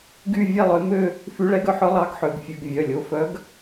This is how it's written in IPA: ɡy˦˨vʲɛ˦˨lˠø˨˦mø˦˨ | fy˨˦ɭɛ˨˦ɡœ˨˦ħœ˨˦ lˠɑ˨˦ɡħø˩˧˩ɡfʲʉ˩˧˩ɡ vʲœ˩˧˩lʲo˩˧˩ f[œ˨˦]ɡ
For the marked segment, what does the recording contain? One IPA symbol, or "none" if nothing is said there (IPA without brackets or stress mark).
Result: œ˨˦